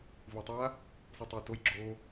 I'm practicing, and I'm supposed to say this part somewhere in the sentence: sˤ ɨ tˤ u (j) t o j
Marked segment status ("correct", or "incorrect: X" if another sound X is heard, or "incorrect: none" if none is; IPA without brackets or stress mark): correct